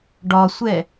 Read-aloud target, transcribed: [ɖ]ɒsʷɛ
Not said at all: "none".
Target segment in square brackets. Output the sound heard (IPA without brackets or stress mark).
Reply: ɖ